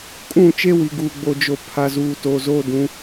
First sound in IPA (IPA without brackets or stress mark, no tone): kʼ